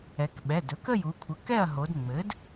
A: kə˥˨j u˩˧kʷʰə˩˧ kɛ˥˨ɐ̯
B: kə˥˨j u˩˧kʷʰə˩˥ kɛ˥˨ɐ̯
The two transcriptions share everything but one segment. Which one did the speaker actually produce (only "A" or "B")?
B